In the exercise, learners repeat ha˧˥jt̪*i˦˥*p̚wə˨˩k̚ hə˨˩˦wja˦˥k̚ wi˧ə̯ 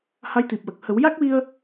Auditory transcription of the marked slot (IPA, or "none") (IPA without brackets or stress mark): i˨˩